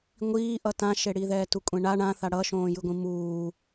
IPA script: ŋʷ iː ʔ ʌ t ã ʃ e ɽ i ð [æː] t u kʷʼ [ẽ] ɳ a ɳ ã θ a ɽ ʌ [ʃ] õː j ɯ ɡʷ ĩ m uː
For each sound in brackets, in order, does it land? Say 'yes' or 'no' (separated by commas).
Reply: no, yes, yes